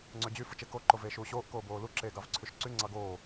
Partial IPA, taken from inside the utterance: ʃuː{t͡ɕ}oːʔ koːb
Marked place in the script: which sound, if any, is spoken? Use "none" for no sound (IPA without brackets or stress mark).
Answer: ɕ